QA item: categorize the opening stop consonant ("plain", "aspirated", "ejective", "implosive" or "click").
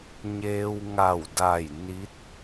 plain